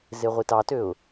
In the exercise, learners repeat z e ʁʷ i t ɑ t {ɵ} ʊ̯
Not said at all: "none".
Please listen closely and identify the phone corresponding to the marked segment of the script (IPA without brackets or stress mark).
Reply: ø